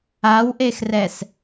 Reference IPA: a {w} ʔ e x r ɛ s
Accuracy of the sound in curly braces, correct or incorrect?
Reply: correct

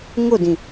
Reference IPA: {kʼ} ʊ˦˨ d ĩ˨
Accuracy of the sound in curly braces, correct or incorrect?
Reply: incorrect: ŋ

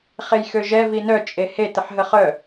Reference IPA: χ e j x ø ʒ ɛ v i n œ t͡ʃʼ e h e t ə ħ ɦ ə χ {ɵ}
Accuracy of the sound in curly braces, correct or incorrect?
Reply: incorrect: œ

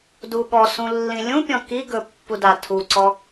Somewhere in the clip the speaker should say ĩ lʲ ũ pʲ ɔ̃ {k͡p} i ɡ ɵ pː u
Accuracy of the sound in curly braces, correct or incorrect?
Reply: incorrect: k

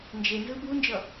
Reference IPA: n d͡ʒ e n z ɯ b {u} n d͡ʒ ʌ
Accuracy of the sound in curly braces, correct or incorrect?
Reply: correct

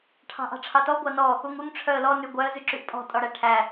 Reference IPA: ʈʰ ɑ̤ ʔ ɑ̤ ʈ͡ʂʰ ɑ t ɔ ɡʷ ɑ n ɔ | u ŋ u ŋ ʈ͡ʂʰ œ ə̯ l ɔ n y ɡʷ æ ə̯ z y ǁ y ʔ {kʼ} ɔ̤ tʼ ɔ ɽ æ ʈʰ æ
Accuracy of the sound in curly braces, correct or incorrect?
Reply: incorrect: pʼ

